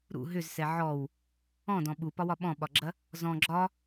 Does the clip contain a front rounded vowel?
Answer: yes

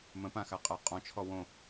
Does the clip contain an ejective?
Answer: yes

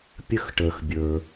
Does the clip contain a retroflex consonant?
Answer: yes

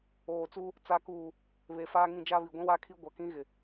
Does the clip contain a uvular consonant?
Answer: no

